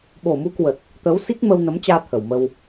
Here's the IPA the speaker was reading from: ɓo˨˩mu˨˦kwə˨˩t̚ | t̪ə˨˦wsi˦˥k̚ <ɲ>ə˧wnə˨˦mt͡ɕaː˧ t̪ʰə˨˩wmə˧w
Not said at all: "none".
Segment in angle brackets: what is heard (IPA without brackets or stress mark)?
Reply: m